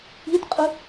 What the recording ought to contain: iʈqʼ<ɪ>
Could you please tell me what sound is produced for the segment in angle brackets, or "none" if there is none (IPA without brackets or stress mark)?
ɪ